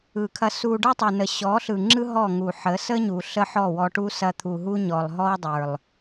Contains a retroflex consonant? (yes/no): yes